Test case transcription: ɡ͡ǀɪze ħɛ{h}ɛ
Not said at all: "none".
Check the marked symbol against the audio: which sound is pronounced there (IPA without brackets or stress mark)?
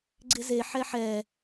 ħ